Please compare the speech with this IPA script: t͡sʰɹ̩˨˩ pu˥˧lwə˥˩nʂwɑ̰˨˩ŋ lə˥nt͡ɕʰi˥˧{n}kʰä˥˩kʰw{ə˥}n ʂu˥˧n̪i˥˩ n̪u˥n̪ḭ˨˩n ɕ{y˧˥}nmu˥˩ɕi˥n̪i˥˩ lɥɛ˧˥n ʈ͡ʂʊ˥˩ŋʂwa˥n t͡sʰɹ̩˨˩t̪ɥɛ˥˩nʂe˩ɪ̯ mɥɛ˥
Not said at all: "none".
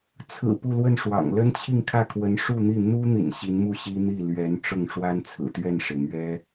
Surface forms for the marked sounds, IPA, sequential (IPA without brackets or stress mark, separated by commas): ŋ, ə˧˥, i˧˥